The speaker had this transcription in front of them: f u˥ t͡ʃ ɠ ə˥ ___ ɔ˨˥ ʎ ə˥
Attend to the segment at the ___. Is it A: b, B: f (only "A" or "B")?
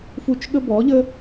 A